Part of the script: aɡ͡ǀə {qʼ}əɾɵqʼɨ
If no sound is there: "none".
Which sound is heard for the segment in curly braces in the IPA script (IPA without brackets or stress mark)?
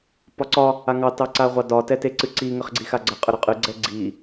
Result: qʼ